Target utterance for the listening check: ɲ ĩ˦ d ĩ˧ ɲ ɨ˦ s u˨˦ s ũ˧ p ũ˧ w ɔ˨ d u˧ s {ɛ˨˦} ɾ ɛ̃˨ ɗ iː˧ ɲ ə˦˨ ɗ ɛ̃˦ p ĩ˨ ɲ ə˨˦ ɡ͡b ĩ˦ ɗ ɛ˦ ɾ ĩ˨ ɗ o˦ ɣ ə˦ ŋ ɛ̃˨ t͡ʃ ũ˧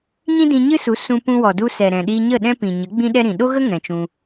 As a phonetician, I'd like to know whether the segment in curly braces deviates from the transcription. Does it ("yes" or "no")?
yes